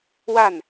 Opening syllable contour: falling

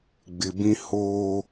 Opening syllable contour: low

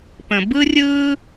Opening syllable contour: low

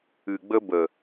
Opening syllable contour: low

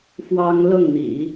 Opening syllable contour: high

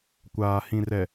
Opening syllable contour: low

